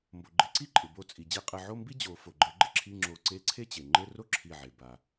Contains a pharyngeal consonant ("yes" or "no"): yes